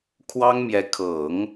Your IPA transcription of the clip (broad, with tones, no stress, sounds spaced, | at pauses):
kʰ w ɑ˥ ŋ m j ɛ˧˥ kʰ ɤ˨˩˦ ŋ